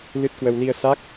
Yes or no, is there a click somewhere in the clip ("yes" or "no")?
no